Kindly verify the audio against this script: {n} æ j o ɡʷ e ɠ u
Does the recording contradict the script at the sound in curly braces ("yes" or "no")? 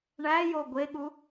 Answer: yes